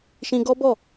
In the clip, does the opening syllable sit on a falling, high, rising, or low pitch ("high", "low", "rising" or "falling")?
high